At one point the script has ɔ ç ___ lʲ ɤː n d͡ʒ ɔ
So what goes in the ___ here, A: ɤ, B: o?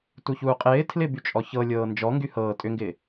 A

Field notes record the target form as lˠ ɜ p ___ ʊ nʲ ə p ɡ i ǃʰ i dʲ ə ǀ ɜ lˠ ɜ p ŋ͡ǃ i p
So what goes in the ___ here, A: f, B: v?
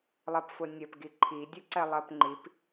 A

